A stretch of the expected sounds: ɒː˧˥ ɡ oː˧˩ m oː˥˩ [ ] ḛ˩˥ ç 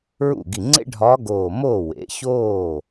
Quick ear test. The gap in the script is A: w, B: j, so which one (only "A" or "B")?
A